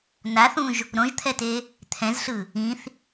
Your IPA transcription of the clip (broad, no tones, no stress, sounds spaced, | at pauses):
n a θ ũ ʒ | ɾ õ ʒ t̪ʰ ɛ t e | t̪ʰ ɛ̃ z ɬ ɯ | ĩ θ